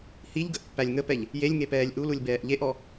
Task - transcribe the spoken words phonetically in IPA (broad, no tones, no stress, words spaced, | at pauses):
hiʎɡəʔpːælʲ ŋəpɛʎ | jelʲŋepɛːlʲ ʔululʲbɛːʔ ʎeʔɔ